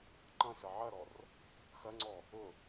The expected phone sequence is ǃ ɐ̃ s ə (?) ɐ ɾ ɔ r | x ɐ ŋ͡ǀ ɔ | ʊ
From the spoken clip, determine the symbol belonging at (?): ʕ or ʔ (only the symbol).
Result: ʕ